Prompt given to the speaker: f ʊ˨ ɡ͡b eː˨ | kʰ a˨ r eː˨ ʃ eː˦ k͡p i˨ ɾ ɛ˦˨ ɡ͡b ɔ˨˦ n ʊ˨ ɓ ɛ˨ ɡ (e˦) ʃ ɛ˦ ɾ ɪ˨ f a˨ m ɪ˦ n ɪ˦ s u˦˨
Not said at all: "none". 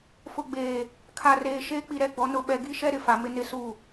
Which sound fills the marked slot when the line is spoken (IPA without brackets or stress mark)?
i˦